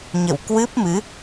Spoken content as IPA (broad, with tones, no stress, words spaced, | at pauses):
ɲə̰˧˨wkwɨ˦˥p̚mɨ˨˦